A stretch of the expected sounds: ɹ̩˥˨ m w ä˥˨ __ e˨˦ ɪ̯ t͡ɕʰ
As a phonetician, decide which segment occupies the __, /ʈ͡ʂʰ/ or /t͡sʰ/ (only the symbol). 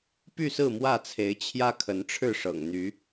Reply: t͡sʰ